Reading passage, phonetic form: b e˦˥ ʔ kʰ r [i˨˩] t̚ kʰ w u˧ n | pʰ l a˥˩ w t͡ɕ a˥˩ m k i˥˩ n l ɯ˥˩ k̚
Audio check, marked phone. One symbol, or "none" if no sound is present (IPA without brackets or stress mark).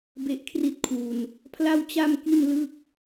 i˥˩